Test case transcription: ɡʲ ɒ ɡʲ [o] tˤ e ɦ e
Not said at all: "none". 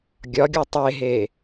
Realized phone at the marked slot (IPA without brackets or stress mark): o